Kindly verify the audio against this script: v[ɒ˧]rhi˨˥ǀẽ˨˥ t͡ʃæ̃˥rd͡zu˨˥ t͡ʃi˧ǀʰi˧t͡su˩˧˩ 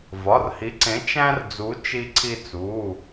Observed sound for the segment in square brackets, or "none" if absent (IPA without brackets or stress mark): ɒ˩˧˩